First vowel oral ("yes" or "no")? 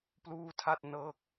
yes